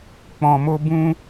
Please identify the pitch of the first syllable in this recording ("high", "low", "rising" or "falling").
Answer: low